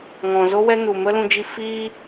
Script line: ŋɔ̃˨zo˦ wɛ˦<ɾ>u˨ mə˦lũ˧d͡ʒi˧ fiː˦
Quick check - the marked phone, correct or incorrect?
incorrect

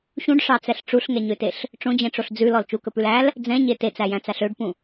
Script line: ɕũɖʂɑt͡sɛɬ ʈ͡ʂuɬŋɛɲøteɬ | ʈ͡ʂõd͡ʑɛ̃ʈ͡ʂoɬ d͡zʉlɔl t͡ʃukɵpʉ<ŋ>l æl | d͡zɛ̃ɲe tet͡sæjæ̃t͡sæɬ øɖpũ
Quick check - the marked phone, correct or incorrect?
incorrect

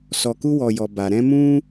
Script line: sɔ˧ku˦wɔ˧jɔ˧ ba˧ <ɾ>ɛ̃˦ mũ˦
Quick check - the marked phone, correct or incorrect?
correct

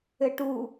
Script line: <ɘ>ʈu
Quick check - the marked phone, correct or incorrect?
correct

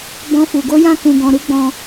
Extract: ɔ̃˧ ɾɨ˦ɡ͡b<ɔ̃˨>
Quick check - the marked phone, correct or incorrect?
incorrect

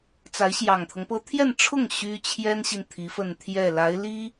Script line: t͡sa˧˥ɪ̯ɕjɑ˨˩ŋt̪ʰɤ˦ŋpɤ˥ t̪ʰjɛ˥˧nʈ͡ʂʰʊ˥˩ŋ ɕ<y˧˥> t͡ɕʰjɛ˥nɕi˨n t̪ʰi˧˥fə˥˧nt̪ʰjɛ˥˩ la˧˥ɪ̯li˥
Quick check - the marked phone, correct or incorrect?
incorrect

